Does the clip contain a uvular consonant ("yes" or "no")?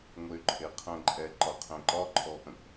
yes